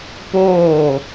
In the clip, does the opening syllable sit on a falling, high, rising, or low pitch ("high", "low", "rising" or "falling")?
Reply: falling